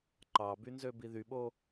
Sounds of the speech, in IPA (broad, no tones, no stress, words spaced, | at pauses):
ǃɑbynzø biðyɓo